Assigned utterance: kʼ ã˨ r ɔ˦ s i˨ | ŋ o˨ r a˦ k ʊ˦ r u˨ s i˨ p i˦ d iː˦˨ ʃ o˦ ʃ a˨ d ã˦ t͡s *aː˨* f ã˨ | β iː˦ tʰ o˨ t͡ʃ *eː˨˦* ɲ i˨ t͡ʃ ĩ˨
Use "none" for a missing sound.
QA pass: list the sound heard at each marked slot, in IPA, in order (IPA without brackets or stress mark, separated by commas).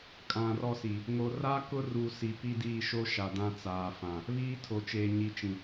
aː˨, eː˨